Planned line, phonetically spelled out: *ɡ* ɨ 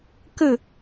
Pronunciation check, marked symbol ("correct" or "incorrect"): incorrect